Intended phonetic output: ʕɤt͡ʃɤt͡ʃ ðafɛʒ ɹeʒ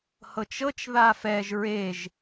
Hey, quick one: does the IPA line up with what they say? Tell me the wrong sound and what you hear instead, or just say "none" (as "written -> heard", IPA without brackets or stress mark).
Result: ʕ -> h